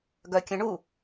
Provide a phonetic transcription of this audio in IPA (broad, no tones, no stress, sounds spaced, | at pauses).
ɡ œ kʲ ə̃ ɳ u